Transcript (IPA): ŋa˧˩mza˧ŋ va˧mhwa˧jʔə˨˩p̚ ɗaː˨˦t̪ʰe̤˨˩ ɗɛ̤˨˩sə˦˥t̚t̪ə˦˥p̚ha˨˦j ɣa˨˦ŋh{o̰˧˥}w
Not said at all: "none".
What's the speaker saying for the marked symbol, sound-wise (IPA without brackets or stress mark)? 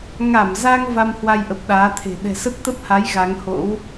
o̰˧˥